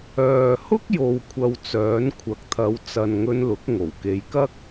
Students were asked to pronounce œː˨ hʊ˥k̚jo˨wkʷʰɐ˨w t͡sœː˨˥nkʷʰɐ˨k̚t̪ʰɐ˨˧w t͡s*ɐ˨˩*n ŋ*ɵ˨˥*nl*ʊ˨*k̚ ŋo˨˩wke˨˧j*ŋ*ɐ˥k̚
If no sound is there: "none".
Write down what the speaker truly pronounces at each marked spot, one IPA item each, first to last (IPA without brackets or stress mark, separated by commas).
ɐ˨, ɵ˧, ʊ˨˥, k